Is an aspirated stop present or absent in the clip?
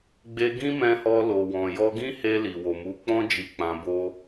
absent